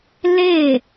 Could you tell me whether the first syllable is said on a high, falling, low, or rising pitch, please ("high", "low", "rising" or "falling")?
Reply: falling